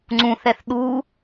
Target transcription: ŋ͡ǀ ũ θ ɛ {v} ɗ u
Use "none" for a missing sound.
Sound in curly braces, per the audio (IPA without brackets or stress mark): θ